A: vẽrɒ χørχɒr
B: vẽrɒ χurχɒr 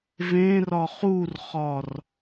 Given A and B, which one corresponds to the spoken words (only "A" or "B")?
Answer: B